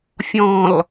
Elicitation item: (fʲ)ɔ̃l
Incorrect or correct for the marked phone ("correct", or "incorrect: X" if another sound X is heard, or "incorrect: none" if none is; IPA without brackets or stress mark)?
correct